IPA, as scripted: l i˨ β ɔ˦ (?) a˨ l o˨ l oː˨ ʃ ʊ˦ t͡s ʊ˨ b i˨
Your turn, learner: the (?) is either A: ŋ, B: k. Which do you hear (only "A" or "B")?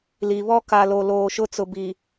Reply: B